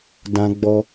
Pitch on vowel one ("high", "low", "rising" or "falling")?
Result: high